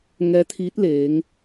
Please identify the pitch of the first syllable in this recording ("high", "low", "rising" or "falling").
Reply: rising